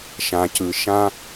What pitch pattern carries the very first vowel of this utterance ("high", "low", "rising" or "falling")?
low